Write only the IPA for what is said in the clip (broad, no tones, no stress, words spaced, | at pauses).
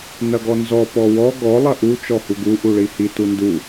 nɐɡɔnzɔ pɔwɔ ɡɔ lˠɐʔu t͡ʃɔhuɡu ʔuɭihi tundu